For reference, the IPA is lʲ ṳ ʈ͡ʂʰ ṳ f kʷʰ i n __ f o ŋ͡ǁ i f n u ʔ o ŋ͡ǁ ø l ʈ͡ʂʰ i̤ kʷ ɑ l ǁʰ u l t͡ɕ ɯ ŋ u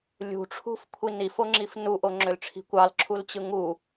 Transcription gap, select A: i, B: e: A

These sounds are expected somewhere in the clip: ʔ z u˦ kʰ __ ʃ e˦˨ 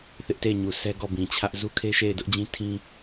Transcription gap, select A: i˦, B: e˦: B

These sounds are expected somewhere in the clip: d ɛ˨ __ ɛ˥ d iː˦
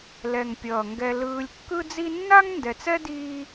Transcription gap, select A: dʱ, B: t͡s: B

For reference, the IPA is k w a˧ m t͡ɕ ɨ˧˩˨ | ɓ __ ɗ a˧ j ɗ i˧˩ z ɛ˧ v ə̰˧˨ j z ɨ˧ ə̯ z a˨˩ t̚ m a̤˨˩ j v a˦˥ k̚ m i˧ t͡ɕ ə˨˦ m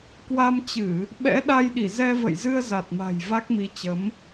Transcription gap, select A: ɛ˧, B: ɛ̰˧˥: B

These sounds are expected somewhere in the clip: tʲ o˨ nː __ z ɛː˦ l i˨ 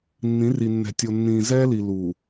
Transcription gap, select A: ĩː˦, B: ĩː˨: B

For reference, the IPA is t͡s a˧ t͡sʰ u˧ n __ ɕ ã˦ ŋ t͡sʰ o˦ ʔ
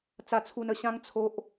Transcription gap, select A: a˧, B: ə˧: B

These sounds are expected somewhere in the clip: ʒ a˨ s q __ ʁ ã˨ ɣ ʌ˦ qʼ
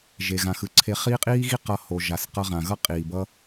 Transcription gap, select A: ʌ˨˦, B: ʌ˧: B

